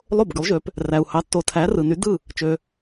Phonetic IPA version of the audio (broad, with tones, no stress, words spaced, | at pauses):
lˠo˥˩bɡy˩˥lˠʒø˩˥p | ræ˩u̯hɑ˩˥ tːo˩tʰæ˩˥ rɯ˩ny˩˥ dɯ˥˩ | t͡ʃø˩